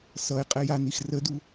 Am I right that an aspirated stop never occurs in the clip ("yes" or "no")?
yes